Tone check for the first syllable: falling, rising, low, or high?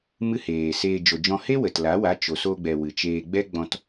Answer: high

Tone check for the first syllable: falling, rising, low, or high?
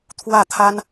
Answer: falling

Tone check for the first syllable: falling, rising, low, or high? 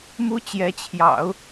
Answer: high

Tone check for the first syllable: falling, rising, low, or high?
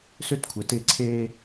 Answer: high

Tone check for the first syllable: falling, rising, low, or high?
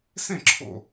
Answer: falling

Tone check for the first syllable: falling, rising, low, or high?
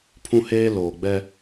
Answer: high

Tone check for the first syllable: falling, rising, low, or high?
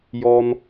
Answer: high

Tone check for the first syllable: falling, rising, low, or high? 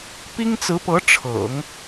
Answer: high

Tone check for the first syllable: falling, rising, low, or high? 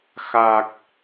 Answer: low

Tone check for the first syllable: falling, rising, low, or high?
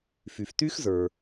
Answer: low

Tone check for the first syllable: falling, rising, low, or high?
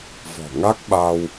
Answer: low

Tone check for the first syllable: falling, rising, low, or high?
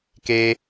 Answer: high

